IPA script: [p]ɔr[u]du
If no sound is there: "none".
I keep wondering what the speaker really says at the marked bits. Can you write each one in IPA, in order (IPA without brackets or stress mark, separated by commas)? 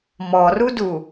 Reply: m, u